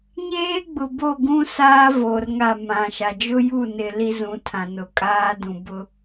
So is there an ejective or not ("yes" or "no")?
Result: yes